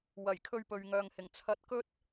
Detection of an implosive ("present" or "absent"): absent